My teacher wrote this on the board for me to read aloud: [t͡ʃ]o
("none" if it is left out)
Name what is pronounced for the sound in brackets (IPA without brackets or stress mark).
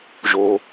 ʒ